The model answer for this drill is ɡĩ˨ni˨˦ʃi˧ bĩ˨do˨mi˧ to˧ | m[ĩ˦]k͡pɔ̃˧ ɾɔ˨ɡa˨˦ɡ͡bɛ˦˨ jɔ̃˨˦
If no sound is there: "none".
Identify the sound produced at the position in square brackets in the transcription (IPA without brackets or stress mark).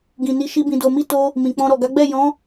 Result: ĩ˨